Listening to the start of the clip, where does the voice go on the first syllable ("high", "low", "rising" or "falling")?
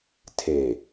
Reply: low